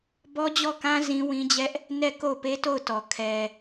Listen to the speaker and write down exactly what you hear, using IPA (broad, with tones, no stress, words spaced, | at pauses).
bɔ˦d͡ʑɔ˦˨kã˦ zĩ˦wĩ˦d͡ʑɛ˦ʔ | nɛ˦˨ ko˦˨ʊ̯pe˦to˦˨ʊ̯tɔ˨ kʰɛ˨